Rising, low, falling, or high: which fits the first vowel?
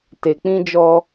low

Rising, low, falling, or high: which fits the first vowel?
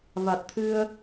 low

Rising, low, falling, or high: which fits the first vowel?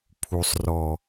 low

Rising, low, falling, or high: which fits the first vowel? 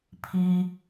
low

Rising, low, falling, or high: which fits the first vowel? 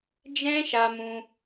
high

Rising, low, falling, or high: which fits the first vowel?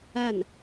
falling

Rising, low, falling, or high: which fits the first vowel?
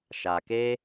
low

